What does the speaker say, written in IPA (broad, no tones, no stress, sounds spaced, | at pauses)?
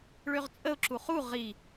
ɭ ø ʁ t͡sʼ ə ʊ̯ ǁ u χ u ʁ i